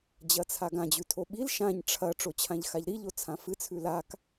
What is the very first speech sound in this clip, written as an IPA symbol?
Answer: d͡ʑ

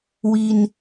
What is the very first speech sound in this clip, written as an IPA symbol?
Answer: w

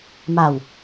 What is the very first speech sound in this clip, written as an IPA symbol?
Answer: m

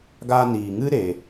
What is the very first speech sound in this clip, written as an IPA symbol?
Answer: ɡ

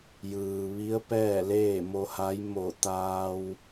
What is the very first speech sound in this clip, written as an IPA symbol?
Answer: j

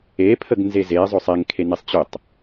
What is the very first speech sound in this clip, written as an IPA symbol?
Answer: e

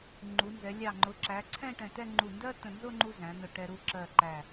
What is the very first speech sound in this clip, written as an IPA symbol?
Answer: ŋ͡ǃ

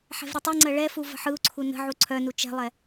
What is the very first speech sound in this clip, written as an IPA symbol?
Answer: ħ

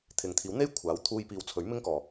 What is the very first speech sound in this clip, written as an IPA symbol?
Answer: t̪ʰ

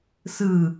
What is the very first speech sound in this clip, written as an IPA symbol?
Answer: s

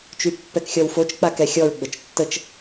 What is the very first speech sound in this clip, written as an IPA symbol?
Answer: t͡ʃ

